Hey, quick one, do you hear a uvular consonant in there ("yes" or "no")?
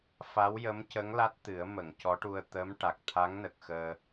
no